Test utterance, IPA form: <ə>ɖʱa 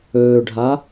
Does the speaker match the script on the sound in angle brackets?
no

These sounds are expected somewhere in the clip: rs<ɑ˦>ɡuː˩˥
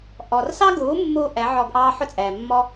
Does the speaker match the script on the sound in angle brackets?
yes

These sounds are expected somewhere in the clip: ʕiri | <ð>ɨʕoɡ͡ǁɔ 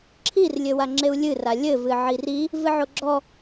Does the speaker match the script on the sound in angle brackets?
no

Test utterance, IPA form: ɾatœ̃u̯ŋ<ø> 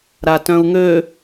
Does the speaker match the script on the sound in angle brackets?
yes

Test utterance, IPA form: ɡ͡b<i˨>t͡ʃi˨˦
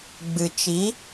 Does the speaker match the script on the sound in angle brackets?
no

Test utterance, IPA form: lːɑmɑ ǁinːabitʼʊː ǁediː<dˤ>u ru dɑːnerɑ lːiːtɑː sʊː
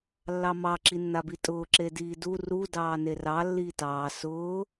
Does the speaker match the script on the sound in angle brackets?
no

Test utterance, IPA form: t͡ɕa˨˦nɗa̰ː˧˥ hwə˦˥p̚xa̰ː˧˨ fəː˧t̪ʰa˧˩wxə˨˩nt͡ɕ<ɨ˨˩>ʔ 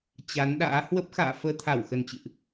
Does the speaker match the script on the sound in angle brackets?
no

